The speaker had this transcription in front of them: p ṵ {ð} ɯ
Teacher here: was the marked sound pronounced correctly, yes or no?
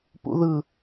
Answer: yes